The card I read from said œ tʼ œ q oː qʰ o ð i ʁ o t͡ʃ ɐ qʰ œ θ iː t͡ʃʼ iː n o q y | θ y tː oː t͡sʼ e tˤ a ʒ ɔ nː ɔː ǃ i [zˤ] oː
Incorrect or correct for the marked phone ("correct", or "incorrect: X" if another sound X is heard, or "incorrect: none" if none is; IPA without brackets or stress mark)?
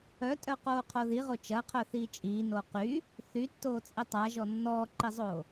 correct